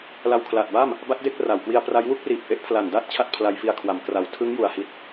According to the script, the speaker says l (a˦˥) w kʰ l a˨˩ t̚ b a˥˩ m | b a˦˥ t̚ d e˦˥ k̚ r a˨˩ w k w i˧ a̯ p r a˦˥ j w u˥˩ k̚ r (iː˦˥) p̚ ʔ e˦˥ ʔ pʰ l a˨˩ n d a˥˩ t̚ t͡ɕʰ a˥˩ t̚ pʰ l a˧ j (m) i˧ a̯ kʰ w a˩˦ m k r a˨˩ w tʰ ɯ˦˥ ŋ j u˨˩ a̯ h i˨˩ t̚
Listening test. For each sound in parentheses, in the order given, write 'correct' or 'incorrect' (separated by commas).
incorrect, incorrect, incorrect